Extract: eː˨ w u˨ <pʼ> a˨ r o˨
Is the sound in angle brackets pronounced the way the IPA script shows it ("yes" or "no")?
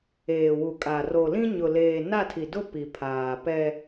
no